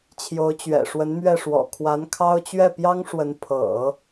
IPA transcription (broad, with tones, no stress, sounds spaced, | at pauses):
t͡ɕʰ j o˧˥ ʊ̯ t͡ɕ ɥ ɛ̰˨˩ ʂ w ə˧˥ n m ɥ ɛ˥˩ ʂ w ɔ̰˨˩ kʰ w a˧˥ n kʰ ɑ˥ ʊ̯ t͡ɕ ɥ ɛ˥˩ p j ɑ˥ ŋ ʂ w ə˧˥ n pʰ ɤ̰˨˩˦